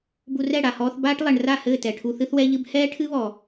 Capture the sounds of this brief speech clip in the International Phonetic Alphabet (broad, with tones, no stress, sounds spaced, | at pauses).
b u˧ r ɛ˦˨ ɽ a˨ h ɔː˧ θ b aː˦ ʈ lˠ ɛ˨ ɳ r a˦˨ h ɘː˦˨ t ɛ˨ ʈʰ u˧ θ ɨ˦ θ w ɛ˦ ʎ ɨ˦ b h ɛː˦ ʈʰ ɨ˦ β ɔ˨